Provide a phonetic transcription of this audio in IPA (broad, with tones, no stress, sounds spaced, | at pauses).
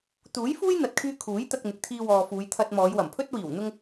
t̪ uː˨˥ j f uː˥ j n̪ ɐ˨ t̚ kʰ yː˧ kʰ uː˨˥ j t̪ ɐ˧ k̚ n̪ ɪ˨ k̚ t̪ʰ iː˧ w ɔː˨ f uː˨˧ j t̪ʰ ɐ˧ t̚ m ɔː˨˧ j w ɐ˨˩ m pʰ ɵ˥ t̚ w iː˨˩ w n̪ ʊ˧ ŋ